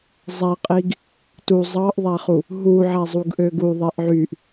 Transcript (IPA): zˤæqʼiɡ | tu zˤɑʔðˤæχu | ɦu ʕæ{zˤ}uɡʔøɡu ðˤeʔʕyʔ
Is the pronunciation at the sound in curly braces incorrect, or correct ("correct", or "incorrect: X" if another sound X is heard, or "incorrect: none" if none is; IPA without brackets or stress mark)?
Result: correct